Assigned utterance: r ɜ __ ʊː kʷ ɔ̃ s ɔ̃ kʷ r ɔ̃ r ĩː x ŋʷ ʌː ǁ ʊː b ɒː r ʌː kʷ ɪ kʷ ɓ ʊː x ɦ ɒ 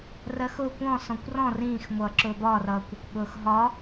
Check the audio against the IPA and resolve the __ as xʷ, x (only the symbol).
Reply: x